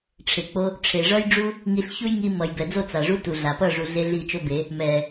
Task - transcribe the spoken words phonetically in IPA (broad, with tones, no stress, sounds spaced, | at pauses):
ʈ͡ʂʰ e˨ k͡p o˧ | ʈ͡ʂʰ e˨ ʐ ʌ˦ j ɖ͡ʐ u˦ | ŋ i˧ ɬ ç u˦ j ŋ i˧ m ʌ˨ j b ɛ˨ d͡z o˦˨ t͡s a˨ ʐ u˦ t u˨ ɮ a˨ p ʌ˦˨ ʐ u˨ ɮ e˦ ɮ i˦˨ t͡ʃ o˦ b e˨˦ | m ɛ˨